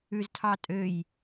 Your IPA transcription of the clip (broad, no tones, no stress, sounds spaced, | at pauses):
ʉ z tʰ ɑ tʼ ø j